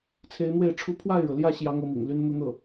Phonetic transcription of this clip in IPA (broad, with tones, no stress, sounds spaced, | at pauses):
t͡sʰ e˧˥ ɪ̯ n̪ w e˥˩ ɪ̯ ʈ͡ʂʰ u˥ pʰ w a˥˩ ɪ̯ ɻ ɤ˩ l j ä˥˩ ɕ j ɑ˥ ŋ ɤ˥ m ḭ˨˩ ŋ l y˥ n n̪ u˥˧ n̪ ɤ˥˩